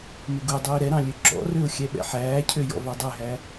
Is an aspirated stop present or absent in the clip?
present